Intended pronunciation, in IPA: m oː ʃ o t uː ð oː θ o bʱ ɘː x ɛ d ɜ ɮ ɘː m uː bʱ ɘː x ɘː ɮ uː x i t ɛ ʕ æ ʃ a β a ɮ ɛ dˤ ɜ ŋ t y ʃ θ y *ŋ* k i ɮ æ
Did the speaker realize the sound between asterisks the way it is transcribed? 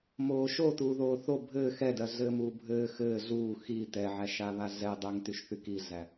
no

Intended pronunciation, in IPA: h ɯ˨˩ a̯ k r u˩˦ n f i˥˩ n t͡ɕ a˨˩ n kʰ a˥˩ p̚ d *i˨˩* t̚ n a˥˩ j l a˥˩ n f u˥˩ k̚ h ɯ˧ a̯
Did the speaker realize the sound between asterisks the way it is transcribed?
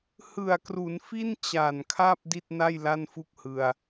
no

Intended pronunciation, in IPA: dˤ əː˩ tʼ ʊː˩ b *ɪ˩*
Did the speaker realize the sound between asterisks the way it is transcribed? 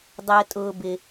yes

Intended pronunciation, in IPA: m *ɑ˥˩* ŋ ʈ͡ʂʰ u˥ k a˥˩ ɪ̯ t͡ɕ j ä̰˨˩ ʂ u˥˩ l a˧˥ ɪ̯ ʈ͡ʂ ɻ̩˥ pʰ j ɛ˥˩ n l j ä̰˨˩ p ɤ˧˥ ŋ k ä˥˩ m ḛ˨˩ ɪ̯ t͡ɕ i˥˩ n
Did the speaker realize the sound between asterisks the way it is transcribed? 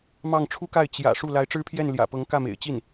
yes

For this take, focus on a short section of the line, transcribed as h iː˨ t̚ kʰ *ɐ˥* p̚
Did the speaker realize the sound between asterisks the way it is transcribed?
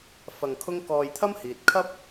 yes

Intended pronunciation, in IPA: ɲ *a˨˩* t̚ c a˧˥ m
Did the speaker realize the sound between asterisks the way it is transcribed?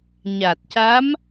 yes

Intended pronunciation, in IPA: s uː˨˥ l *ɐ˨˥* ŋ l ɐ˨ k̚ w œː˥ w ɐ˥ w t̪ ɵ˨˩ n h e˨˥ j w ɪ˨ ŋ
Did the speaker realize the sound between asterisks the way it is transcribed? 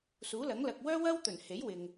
yes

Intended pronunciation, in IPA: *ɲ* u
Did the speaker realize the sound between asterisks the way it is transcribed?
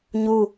yes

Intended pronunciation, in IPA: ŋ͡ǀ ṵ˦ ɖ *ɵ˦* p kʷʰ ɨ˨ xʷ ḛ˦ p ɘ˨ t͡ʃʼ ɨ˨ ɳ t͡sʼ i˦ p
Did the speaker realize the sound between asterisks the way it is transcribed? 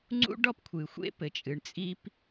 no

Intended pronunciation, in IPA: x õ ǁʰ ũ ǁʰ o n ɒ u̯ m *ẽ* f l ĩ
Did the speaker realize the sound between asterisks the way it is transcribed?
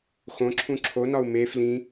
no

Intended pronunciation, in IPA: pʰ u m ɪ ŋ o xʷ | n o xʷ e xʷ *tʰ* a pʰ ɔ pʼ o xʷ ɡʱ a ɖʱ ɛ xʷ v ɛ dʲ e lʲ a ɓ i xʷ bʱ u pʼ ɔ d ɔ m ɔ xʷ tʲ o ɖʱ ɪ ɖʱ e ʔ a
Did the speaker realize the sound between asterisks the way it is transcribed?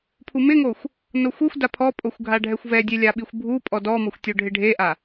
no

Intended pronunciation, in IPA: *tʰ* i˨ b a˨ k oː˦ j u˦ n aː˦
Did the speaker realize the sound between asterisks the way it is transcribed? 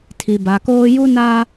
yes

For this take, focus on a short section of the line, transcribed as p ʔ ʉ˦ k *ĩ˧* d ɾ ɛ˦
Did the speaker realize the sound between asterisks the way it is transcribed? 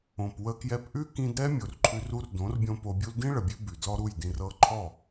yes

